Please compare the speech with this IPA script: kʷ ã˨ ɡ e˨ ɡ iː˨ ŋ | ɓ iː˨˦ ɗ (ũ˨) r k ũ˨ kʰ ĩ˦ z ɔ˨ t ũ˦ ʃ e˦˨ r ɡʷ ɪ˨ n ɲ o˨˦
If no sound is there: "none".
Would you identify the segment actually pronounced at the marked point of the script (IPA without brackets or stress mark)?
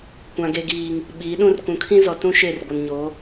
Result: ũ˦